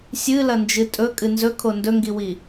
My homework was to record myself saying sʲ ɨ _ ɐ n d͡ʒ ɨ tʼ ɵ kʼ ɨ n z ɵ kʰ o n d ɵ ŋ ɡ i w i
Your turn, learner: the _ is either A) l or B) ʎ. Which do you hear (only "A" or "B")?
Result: A